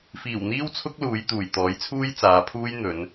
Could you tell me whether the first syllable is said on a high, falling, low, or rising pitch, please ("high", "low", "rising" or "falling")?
low